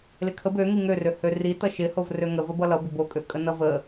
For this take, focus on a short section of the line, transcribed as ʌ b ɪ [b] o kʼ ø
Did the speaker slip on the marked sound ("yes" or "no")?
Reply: no